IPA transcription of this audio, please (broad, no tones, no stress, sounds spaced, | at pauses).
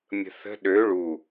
mʲ ə̤ θ ə̤ ɗ ø ɭ u